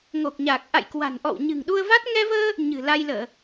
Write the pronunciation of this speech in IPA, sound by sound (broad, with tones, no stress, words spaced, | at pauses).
ŋo˨˩k̚ɲaː˨˩k̚ ʔa̰˧˨jkwa̤˨˩nʔɔ̰˧˨w ɲɨ̤˨˩ŋɗu˧ə̯va˦˥t̚ ŋɛ˧vəː˧ | ɲɨ̤˨˩ la˧jləː˧˩˨